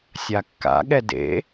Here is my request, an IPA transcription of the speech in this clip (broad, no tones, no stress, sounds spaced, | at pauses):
sʲ a kː a̰ ɠ ɛ d ḛ